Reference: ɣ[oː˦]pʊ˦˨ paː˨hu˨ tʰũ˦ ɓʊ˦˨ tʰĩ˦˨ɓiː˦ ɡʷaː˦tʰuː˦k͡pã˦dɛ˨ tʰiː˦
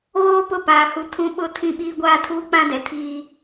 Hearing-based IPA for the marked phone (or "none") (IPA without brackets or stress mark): oː˦